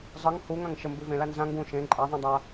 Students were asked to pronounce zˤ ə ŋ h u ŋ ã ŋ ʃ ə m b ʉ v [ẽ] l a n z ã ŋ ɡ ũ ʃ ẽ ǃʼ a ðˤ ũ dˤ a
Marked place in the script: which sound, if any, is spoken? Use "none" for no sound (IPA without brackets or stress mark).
ẽ